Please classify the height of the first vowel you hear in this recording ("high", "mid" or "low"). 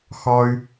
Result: low